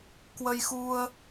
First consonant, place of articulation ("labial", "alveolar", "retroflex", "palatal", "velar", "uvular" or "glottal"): velar